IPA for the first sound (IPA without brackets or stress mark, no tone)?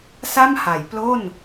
s